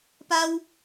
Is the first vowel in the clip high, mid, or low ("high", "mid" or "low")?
low